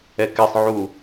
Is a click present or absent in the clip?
absent